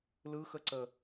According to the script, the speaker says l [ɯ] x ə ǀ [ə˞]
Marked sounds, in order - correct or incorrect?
correct, incorrect: ə

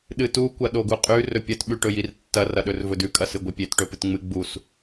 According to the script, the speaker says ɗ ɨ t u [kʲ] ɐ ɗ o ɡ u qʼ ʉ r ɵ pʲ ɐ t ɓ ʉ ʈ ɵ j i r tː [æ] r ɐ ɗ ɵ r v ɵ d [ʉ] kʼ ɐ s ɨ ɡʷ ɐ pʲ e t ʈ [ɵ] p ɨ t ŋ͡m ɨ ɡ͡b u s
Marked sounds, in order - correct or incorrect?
incorrect: kʷ, incorrect: ɐ, correct, correct

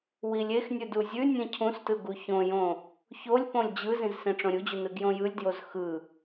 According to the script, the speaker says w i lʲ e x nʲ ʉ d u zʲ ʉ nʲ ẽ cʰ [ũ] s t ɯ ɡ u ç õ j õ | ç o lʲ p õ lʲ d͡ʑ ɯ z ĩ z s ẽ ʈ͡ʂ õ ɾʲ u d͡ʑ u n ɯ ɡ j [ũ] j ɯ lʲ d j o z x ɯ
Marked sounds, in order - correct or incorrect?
correct, incorrect: õ

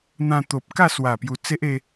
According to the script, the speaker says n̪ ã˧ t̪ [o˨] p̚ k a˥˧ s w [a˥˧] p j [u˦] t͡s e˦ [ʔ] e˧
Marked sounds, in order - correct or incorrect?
correct, incorrect: a˨˩, incorrect: u˨˩, correct

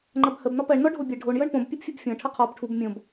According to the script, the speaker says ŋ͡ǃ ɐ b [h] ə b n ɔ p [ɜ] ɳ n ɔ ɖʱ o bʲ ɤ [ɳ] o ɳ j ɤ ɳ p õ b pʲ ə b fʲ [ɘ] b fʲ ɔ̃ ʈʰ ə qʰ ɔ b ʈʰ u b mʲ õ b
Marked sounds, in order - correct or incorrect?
correct, correct, incorrect: ɖʱ, correct

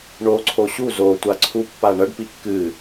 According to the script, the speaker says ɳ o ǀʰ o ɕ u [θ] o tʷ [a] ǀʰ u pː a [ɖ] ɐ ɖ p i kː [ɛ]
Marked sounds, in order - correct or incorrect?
incorrect: z, correct, incorrect: ɳ, incorrect: ɨ

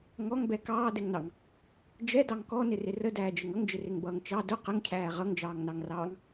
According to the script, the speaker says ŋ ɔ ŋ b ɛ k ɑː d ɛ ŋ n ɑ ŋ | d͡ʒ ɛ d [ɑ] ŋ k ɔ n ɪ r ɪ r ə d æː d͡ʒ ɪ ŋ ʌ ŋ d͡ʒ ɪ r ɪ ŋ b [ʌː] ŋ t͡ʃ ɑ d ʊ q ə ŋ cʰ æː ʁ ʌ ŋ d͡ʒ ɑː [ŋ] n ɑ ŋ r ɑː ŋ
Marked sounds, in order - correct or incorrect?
correct, correct, correct

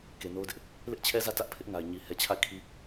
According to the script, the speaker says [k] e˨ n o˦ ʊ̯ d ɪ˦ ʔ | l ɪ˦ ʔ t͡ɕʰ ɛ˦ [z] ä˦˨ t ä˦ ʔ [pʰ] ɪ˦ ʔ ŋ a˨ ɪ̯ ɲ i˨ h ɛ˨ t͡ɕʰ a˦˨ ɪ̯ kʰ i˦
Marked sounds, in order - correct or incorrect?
correct, correct, correct

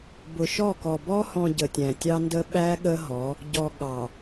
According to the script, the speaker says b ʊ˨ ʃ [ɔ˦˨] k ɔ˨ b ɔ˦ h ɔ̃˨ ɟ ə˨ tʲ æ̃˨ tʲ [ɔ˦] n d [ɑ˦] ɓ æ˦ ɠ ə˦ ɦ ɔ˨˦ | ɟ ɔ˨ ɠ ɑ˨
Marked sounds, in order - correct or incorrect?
correct, incorrect: ɑ˦, incorrect: ə˦

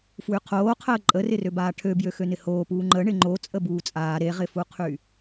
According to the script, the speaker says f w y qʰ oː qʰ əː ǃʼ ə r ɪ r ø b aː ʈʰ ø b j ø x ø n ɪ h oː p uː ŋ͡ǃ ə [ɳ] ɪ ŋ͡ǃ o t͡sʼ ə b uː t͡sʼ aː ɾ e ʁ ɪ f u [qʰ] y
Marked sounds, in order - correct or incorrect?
correct, correct

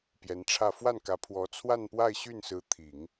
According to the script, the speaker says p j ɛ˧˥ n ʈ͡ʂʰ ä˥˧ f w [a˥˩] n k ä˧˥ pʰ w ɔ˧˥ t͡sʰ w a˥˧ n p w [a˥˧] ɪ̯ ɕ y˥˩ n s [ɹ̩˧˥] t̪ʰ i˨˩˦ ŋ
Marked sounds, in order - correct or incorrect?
correct, correct, correct

